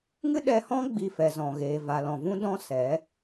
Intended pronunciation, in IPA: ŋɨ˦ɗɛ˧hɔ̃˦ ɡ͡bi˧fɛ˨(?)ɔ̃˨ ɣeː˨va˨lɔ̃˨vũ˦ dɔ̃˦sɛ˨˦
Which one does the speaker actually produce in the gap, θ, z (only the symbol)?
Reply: z